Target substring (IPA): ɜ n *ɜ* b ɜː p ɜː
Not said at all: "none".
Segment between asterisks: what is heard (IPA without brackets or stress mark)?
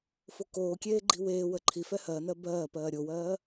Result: ɜ